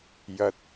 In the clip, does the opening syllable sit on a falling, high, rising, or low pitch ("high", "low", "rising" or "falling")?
rising